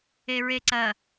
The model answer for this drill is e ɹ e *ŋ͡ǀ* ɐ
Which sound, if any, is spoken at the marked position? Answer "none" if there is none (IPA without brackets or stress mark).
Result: ǀ